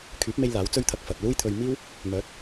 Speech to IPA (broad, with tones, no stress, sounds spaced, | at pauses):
kʰ yː˨˥ p̚ m e˧ j l aː˨˥ w t͡s ɵ˥ ɥ t̪ʰ ɐ˧ k̚ f ɐ˨ t̚ l uː˥ j t̪ʰ ɵ˧ ɥ m iː˥ w | m œː˨˥ t̚